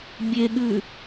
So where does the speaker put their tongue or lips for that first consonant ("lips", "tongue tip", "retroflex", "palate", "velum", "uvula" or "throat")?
lips